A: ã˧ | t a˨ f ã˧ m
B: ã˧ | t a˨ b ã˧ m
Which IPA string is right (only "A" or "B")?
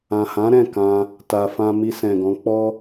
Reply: A